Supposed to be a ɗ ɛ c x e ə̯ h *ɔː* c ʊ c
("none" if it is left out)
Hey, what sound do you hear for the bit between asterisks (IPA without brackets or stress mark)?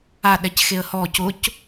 ɔː